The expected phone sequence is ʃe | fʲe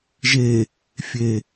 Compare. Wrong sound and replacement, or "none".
ʃ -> ʒ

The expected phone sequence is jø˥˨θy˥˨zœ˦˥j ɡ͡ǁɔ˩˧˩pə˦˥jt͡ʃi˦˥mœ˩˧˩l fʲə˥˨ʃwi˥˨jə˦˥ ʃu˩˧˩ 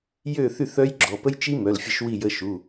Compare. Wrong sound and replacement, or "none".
z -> θ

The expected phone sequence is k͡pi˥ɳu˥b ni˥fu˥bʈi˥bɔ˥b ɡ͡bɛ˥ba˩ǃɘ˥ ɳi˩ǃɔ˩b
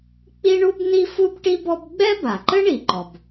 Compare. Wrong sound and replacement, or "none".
none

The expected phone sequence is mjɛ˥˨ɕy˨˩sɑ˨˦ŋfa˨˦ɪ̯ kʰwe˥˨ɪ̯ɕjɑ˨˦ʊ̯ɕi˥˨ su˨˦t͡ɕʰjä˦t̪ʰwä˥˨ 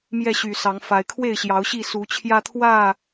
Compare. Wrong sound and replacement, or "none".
none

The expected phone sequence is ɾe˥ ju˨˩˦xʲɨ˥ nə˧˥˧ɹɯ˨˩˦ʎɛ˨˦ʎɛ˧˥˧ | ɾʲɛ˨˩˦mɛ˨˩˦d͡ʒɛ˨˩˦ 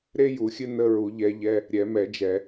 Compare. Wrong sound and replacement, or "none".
ɯ˨˩˦ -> u˨˩˦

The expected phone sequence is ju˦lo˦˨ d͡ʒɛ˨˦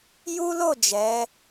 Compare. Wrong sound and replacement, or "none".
none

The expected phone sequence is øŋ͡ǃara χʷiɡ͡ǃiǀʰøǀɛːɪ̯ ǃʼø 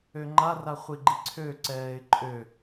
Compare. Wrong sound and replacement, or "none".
none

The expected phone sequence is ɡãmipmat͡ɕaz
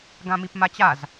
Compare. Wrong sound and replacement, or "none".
none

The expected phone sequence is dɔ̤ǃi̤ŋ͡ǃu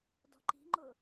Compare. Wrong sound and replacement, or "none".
u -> ʊ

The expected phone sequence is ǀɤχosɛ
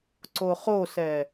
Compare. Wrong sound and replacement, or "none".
ɤ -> o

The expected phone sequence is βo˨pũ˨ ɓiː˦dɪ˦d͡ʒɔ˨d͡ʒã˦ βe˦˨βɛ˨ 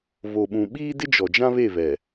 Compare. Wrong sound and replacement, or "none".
p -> ɓ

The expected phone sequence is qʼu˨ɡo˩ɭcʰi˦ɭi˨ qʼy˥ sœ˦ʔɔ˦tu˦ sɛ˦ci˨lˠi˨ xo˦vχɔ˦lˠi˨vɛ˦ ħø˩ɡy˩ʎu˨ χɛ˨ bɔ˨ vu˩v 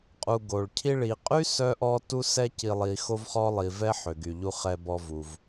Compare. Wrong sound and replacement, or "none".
none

